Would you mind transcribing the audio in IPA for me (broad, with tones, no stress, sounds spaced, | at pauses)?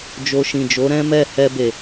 d͡ʒ o˧ ʃ ĩ˨ d͡ʒ o˨˦ ɾ ɛ̃˦ m ɛ˦˨ h ɛ˧ b e˨